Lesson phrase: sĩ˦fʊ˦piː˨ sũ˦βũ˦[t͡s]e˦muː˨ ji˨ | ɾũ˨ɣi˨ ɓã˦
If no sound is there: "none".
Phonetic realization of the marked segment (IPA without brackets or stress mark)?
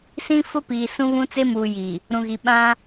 t͡s